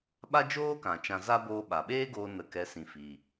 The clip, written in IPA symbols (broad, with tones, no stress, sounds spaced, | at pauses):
ɓ a˦ d͡ʒ oː˦ k ã˨ t͡ʃ ã˧ z a˦ b oː˧ ɓ a˨ ɓ eː˦ ɡ oː˧ n ə˨ k ɛ˨˦ s ĩ˨ f i˨